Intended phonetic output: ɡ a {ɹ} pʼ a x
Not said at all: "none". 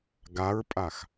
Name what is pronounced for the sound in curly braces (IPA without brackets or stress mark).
ɹ